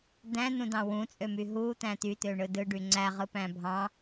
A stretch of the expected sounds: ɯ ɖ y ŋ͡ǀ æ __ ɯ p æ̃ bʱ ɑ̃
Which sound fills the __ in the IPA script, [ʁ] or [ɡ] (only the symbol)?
ʁ